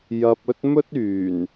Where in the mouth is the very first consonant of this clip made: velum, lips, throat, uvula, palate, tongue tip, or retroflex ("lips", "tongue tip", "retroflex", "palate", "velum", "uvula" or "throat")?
palate